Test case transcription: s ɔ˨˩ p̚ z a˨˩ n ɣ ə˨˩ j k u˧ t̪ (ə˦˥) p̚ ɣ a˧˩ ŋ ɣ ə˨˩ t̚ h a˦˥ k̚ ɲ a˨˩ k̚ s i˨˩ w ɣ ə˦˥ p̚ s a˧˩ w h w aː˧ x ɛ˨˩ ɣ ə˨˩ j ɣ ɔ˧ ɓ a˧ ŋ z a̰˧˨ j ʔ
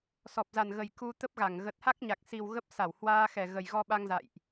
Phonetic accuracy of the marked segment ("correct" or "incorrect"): correct